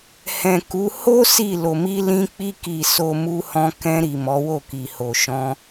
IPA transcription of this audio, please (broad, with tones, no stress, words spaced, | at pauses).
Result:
hɛ̃˨ku˨˦ ho˦ si˦˨ lo˨mi˧ lĩ˧k͡pi˧ki˨ so˨ mu˧hɔ̃˧ kɛ̃˧ɾi˨ mɔ˨˦wo˦˨ki˨ ho˨ʃɔ̃˧